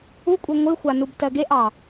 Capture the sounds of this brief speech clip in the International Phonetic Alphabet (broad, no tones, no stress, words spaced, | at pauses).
ukʷʼe ŋʷɨxʷanub tɜɡeʔɑ